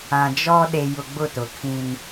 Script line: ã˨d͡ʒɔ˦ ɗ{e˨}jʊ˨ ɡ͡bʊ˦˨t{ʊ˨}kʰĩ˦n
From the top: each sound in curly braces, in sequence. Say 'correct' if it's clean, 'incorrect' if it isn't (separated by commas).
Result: correct, correct